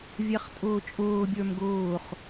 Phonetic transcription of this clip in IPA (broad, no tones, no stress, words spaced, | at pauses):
vʲæχtʼʊːt͡ʃʼʊː bʲə˞mɡʊːχ